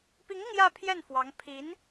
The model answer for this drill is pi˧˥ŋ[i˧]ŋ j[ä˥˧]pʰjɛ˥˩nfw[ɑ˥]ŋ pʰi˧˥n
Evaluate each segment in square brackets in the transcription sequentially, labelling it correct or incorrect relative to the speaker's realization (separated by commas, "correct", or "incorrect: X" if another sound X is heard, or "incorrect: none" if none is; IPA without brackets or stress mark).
correct, correct, incorrect: ɑ˧˥